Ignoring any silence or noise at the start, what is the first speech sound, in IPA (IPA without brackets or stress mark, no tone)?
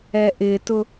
ɛ